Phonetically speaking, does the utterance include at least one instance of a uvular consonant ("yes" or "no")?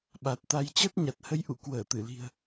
no